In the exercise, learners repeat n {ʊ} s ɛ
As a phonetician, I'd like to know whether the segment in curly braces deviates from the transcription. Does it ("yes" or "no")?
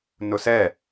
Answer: no